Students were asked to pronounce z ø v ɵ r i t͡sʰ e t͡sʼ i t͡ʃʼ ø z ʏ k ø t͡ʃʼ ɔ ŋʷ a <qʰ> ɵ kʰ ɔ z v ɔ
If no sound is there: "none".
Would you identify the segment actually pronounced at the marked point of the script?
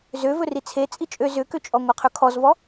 qʰ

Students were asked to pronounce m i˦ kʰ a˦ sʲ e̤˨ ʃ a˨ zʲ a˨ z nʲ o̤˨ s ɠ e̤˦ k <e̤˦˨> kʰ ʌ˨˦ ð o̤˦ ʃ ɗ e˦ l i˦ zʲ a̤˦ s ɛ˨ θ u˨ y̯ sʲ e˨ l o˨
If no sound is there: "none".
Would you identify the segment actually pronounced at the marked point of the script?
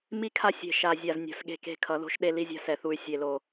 e̤˦˨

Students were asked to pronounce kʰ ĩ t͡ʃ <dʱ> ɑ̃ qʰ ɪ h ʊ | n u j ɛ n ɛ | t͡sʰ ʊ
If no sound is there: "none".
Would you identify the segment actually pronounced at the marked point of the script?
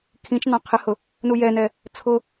n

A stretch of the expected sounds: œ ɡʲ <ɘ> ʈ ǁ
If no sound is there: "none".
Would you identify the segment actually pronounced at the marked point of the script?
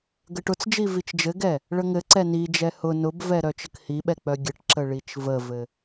ɘ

